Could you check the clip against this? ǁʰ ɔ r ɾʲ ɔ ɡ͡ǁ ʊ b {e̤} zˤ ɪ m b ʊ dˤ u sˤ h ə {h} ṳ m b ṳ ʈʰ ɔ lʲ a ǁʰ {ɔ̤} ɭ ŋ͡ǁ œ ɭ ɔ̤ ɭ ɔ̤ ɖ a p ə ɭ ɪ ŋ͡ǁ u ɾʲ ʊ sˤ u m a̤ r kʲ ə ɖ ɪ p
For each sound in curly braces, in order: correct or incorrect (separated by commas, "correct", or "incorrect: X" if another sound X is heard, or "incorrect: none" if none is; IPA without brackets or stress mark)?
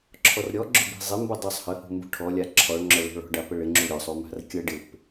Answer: incorrect: i̤, correct, incorrect: ɔ